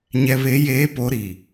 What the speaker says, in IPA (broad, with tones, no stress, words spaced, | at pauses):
ɲɛ˨βe˨˦jeː˨˦ po˨˦ɾi˨